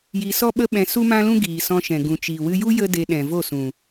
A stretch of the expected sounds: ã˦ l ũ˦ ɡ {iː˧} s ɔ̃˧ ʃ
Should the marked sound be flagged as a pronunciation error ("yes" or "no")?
yes